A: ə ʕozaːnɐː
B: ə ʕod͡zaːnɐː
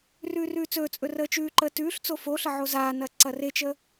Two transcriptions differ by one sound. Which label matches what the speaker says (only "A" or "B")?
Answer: A